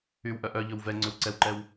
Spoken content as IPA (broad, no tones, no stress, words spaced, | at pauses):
ywʔœ ʔœʎɵw vɛ ŋ͡ǀøwǀɛwǃɛw